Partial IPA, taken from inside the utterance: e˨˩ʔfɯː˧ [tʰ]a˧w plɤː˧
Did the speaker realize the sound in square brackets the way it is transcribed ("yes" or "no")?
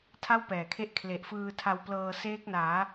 yes